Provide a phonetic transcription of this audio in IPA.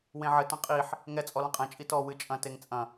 wẽʕɘ tɐ̃qʼiħ | ŋɛ t͡sʼɔlɐ̃qʼɛ̃ t͡ʃʼitɔ wɨt͡ʃʼɐ̃ teŋt͡sʼɐ̃

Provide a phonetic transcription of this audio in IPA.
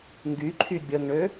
ŋɡyǃʰy bʲəŋɳø

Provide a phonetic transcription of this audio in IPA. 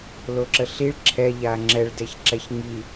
loǁəɬiɭ ǁʰɛʎa ŋ͡ǁɛɭdɛç ǁɛçŋi

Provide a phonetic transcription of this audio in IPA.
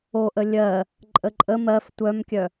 oʔ əlʲɜ | ǃʼəǃʼə mɜf tʷœmkʲœ

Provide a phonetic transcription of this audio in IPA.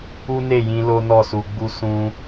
u˦ne˦˨jĩ˧ lo˦nɔ˦˨su˧ɡ͡bu˦ sũ˧

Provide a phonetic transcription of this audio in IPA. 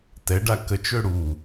tɛɖa kət͡ʃø ɽu

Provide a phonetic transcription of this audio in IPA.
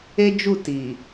e˦d͡ʒu˦˨ti˨

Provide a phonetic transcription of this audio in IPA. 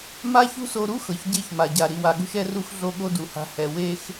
ma˦çṳ˦so˧ɾu˦ xɤ˨çɟe˦˨çma˨ɟa˨ ɾi˨wa˨ɠṳ˧ʃ ɛ˧ru˧x ɮo˦ɠo˦du˨ha̤˧ hɛ˨ we˦x

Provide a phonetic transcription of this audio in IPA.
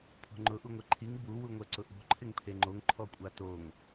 pʰo̤ŋ͡ǃʊ ʔuŋʷɛǃʰiŋ bu wuŋʷɛǀʊʔo̤ ǃʰɪŋpʰeŋ͡ǃoŋ ǃʰɔkʷʼatoŋ

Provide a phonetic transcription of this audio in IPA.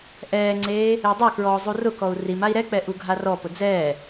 ʔɛːŋ͡ǀeː | edˤakɹɔː zˤurʊkɔu̯ rimai̯ ɾɛk͡pɛ ʔuɡʱarɔpʊ d͡zɛː

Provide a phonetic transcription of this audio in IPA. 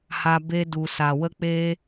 ha˧ be˧du˨sa˨wə˦ k͡peː˦

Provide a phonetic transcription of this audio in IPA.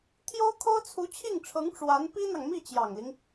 t̪ʰjo˥ʊ̯kʰo˥ʊ̯ t͡sʰu˧˥t͡ɕʰi˥˩ŋʈ͡ʂʰɤ˧˥ŋ ʈ͡ʂwa˧˥n pi˥n̪ɑ˨ŋmi˥˩ t͡ɕjɑ˨˩ŋli˦ŋ

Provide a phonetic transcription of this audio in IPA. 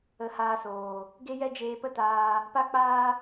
ə˨˦haː˧soː˨ | ɡe˦jɛ˦ d͡ʒeː˧pə˦taː˧ | pa˦k͡paː˦

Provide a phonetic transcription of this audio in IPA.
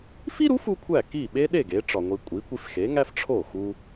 fi˥ɾu˩˥f u˥kʷʰæ˥˩ ki˥˩ɓe˥ɗe˥˩ ɡe˩˥ʈ͡ʂɒ˩ŋʷi˧ kʷʼi˩˥ kʷi˧fxe˩˥ŋæ˥f ʈ͡ʂʰo˥˩ xu˧

